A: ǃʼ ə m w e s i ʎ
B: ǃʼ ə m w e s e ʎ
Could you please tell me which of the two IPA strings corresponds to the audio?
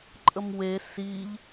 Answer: A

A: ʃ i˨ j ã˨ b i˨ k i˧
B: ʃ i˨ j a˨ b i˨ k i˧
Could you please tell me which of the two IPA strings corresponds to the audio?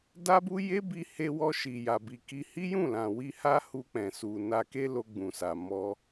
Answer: B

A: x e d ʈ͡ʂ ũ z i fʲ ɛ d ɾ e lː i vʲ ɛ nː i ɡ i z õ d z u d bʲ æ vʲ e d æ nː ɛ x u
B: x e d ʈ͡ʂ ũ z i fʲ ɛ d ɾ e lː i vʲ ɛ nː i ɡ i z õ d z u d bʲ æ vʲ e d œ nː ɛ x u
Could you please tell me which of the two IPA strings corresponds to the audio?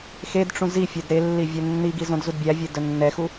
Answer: B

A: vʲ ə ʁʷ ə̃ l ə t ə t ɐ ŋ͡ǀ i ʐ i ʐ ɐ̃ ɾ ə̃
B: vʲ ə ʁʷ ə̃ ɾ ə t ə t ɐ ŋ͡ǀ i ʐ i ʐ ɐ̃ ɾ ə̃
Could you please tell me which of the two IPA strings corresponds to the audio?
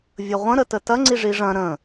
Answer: B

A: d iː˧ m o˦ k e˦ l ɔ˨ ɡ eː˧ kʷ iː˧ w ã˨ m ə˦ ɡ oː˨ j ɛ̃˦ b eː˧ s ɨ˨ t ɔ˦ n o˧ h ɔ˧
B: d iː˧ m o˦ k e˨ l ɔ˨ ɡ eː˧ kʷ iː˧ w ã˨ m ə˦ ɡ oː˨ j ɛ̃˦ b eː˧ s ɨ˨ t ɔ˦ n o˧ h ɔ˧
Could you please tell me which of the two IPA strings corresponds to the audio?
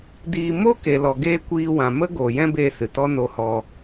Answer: B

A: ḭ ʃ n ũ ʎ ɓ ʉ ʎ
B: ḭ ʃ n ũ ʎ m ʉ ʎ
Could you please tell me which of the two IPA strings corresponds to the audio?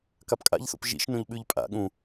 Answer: A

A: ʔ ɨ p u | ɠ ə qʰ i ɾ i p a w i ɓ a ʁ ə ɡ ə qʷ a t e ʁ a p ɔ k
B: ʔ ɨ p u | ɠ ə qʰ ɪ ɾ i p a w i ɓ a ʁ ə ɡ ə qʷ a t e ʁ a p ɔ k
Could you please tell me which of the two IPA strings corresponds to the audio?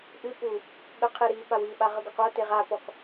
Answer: A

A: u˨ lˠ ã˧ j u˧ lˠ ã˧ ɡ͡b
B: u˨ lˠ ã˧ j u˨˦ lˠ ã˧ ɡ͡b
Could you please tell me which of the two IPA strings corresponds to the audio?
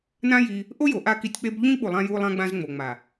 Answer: A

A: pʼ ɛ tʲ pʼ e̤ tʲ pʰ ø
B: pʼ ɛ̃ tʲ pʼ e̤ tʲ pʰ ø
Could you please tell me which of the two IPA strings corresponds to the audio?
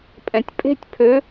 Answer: B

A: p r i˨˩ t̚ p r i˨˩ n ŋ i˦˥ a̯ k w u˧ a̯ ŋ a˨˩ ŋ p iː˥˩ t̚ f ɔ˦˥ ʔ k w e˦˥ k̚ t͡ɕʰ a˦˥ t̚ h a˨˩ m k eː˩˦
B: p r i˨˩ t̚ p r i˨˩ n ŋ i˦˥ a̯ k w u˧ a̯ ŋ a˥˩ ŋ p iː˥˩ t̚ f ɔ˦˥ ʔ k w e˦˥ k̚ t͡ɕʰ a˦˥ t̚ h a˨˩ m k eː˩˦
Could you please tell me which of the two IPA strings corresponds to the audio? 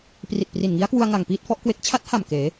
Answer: A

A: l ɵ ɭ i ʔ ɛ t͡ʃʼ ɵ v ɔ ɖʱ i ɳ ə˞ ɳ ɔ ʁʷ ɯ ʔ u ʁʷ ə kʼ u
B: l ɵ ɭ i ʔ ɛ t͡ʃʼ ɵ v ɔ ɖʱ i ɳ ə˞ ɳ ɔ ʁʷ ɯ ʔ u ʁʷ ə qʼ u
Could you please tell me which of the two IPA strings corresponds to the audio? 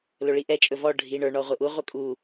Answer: A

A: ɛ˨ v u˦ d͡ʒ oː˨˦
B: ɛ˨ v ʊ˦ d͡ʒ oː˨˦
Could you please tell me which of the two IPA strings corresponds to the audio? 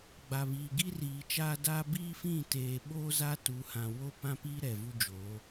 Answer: A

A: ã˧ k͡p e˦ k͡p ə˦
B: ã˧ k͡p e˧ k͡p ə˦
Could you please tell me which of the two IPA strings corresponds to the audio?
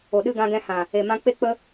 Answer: A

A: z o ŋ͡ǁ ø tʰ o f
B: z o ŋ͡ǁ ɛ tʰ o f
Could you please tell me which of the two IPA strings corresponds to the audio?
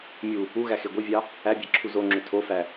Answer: A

